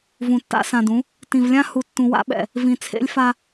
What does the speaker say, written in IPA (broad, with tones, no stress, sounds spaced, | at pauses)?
v ũ˨ tː a̰˦ s ã˨ d ũ˨˦ | t ĩ˨ v lʲ ã˦ h u˨ tː ũ˨ w a̰˦ ɓ ɛ̰˨ | v ĩ˨ t͡sʰ ḛ˦ lʲ f a˦